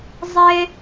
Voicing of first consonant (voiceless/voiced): voiced